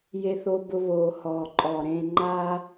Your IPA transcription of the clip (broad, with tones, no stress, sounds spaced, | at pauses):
j e˧ θ o˧ b ʊ˧ β oː˩ h ɔː˩ ǃʼ ɔː˩ ɾ ẽː˧ ŋ͡ǃ aː˥